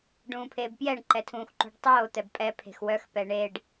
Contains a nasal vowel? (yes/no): yes